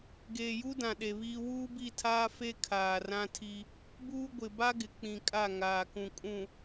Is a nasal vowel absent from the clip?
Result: no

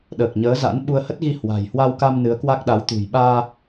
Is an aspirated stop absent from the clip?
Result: yes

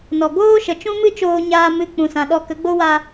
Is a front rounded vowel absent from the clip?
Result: yes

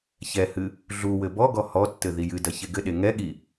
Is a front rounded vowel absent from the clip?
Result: yes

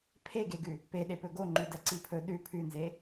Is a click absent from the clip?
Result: no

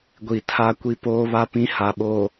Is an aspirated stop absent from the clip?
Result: no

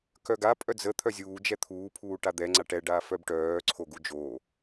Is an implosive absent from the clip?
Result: yes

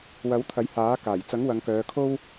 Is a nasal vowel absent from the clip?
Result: yes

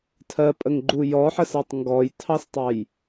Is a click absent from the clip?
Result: no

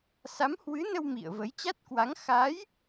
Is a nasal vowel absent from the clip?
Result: yes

